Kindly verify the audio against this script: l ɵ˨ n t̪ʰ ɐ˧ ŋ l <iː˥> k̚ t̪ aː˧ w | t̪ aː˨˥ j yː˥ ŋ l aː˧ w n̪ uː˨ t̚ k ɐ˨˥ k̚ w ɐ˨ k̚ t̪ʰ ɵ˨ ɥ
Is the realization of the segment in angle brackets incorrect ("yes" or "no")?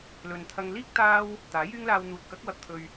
no